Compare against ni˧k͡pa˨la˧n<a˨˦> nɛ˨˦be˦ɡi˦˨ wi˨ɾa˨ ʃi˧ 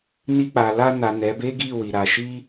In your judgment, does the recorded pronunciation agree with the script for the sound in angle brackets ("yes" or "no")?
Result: no